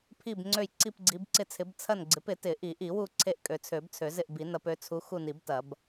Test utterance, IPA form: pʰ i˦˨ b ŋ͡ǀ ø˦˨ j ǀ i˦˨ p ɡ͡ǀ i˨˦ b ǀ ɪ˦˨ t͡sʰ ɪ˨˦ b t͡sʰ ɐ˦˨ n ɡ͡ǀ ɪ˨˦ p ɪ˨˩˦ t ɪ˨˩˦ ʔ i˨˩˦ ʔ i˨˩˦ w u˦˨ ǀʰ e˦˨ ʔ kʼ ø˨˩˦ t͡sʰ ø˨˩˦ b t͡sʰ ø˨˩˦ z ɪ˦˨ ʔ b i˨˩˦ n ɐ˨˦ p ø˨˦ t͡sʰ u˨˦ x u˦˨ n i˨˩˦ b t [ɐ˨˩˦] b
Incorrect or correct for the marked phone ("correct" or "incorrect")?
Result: correct